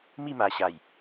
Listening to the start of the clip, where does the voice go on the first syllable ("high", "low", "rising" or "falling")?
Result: falling